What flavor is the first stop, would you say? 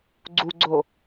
click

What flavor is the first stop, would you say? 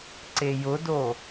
click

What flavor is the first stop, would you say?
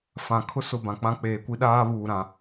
aspirated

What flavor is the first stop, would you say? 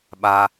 implosive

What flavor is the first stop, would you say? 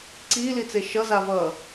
click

